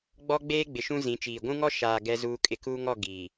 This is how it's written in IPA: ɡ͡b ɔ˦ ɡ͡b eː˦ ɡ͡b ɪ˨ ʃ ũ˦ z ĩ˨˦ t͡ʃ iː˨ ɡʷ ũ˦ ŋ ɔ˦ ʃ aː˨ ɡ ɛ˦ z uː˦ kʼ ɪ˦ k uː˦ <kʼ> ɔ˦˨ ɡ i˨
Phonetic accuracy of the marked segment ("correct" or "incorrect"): incorrect